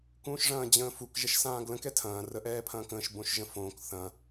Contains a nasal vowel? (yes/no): yes